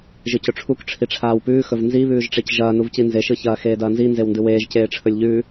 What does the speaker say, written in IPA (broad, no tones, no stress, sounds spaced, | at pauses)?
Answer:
ʒ ɨ c ɵ ʈ͡ʂʰ u k ʈ͡ʂʰ i ʈ͡ʂʰ aː w p ʉː x ɵ v n z i β ʉː ʒ ʈ͡ʂ e c ʒ ɐː n u v c i n z e ʃ ɨ ç ɐː x eː d ɐː n z i n z e w n d ɨ w eː ʒ c eː ʈ͡ʂʰ ɵ lʲ ʎ ʉ